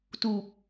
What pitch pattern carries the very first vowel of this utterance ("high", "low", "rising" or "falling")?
low